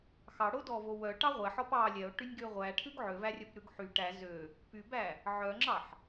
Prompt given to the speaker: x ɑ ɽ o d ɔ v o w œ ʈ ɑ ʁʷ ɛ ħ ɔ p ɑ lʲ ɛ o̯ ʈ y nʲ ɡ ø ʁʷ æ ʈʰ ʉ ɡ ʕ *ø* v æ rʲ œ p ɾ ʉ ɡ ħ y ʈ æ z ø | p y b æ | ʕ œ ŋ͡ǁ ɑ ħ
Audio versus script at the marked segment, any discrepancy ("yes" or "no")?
no